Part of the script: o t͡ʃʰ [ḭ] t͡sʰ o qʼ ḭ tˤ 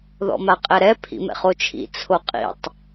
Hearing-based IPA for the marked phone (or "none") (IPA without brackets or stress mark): ḭ